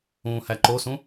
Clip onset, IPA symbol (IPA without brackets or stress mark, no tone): ũː